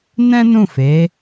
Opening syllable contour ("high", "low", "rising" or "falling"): high